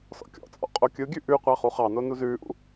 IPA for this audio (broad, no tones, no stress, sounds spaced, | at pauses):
s ɔ̰ kʲ ɔ̰ t͡sʼ ɔ̰ qʼ o kʲ ɯ ɡʲ ʉ ʔ ʉ qʷ ɑ χ u χ ɑ n o n u z ʉː ʔ ṵ